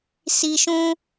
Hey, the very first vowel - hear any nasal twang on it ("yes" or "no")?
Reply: no